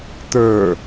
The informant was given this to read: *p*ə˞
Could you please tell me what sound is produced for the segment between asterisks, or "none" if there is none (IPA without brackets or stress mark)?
t̪